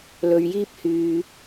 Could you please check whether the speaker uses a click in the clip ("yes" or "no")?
no